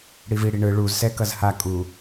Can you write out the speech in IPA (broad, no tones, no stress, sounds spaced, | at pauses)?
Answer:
ɽ i v i ɽ i ɳ ɯ ɭ u z s ɛ k ʌ z h a kʼ u